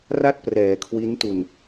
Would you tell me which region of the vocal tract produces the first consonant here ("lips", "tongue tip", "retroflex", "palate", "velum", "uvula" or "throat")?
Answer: tongue tip